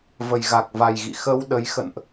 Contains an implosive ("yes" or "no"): yes